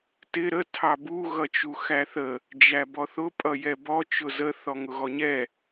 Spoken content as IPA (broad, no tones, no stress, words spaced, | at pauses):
tɪ ɾə tʰɑbu ɣʌt͡ʃuxæθə | d͡ʒæbɔθʊ pʼʌjɛbɔ t͡ʃʊzə θɔŋʊɣɔɲɛ